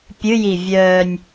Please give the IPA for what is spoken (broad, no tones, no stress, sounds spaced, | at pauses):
pʲ ɨ j i vʲ œː nʲ